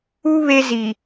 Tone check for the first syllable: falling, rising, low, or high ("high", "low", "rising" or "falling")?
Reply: high